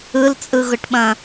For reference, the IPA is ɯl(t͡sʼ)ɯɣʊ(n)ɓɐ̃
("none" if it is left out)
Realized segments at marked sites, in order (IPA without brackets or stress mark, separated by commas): t͡sʼ, ʈ